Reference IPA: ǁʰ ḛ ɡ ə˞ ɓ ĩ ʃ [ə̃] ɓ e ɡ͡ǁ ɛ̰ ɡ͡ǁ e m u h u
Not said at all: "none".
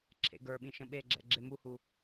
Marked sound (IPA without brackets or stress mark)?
ə̃